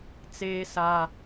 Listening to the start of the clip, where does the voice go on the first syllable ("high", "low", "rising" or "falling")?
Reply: high